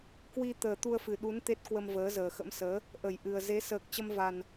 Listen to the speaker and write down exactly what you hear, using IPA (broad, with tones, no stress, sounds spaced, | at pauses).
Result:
k w i˧ t̪ əː˨˩ t̪ u˧ ə̯ f ɨ˨˩ ɗ u˨˦ n t̪ e˦˥ t̚ k w ə˧ m v əː˨˦ z əː˨˩ x ə̰˧˥ m s əː˨˦ | ʔ ə˧˩ j ʔ ɨ˨˩ ə̯ z e˨˦ s əː˨˩ k̚ t͡ɕ ə˧ m v a˨˩ n